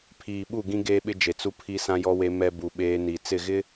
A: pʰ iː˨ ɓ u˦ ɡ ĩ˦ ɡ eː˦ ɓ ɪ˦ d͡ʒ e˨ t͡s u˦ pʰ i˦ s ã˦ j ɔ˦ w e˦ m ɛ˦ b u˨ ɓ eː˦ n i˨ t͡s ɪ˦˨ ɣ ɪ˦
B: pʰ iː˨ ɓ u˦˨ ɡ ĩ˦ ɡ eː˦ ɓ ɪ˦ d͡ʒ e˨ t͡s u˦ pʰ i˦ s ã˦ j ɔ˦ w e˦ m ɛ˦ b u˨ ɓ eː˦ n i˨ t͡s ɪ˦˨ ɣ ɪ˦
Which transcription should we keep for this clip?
B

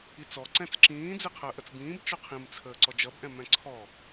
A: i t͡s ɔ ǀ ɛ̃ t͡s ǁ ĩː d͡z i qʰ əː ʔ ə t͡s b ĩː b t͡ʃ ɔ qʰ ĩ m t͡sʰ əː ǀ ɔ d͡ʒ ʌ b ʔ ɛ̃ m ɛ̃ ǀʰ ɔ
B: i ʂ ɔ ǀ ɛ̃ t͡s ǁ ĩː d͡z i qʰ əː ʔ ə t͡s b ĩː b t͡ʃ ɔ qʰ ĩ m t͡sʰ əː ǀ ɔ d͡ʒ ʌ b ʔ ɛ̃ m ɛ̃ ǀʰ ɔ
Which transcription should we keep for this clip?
A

